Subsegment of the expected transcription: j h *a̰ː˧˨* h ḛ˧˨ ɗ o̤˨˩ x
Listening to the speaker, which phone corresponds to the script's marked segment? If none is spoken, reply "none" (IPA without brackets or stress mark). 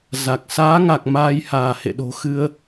aː˧˩